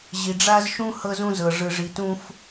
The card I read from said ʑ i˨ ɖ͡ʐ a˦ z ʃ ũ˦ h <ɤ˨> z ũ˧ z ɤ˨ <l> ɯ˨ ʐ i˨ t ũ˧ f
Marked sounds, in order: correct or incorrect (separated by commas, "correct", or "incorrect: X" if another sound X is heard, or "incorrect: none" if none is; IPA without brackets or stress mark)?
incorrect: ɤ˧, incorrect: ʐ